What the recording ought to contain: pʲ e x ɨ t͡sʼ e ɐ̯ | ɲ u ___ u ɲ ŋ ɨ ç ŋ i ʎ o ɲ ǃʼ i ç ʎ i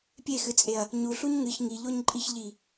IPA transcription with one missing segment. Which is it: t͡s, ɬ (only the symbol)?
ɬ